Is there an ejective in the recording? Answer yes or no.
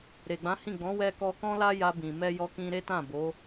no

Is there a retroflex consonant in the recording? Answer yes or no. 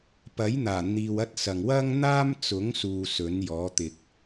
no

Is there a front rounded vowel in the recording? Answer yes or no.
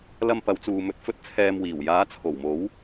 no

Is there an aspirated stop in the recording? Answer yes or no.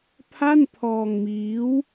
yes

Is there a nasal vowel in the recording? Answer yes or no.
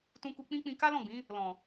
yes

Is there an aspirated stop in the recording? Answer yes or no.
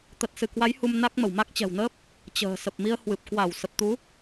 no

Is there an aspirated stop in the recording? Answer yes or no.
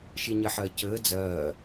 no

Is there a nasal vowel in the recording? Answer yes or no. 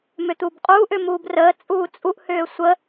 no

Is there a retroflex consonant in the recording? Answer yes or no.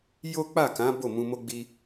no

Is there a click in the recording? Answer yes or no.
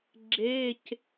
yes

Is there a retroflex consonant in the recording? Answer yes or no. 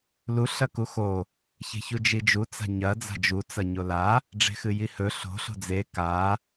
yes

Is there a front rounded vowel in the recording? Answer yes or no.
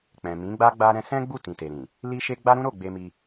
no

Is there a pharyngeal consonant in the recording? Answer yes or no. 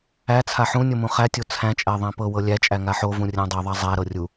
yes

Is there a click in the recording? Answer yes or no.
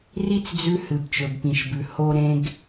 no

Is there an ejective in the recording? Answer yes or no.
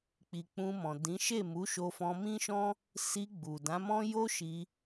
no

